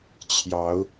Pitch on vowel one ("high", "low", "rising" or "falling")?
rising